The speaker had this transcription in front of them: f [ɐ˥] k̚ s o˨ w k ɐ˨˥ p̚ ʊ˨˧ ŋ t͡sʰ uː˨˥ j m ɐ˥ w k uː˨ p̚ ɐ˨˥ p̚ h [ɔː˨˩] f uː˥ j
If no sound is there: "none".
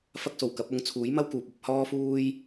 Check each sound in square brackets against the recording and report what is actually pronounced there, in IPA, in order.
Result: ɐ˥, ɔː˥

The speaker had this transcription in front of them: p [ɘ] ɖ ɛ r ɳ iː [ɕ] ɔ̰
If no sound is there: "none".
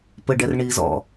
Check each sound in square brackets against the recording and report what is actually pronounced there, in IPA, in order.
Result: ɘ, z

